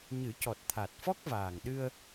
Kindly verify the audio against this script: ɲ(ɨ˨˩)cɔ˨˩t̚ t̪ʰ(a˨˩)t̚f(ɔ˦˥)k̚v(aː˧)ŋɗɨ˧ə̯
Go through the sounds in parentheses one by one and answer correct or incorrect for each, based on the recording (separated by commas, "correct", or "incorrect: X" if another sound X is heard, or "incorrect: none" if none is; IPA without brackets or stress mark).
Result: incorrect: ɨ˨˩˦, correct, correct, incorrect: aː˨˩